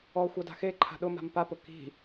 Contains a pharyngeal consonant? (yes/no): no